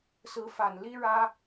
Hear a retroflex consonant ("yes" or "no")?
yes